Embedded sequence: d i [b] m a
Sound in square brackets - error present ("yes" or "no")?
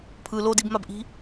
no